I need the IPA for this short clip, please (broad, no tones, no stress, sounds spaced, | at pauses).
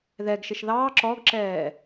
ð ɛ ɡ ʃ ɪ ʃ ð ɑː ǁ ɔ ɡ ǁ ɛː